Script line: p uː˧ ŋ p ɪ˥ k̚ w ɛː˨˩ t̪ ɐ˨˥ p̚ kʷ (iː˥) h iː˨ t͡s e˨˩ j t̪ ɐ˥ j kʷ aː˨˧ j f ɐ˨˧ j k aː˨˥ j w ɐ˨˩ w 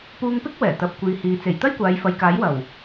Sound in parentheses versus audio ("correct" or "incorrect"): incorrect